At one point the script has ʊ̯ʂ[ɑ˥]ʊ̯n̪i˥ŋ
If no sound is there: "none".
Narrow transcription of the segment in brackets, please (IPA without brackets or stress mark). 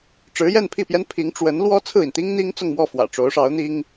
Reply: ɑ˧˥